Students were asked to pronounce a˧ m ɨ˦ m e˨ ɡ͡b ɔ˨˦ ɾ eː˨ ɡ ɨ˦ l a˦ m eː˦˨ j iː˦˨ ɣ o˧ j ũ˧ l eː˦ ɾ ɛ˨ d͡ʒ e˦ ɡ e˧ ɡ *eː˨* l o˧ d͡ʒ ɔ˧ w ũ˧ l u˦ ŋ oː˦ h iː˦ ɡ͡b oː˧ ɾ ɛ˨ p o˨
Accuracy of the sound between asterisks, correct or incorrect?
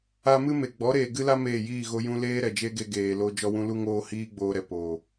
correct